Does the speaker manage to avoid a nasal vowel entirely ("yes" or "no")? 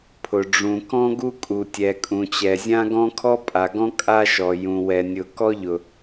no